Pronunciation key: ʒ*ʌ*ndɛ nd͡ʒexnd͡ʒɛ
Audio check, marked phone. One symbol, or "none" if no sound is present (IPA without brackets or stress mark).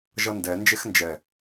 ʌ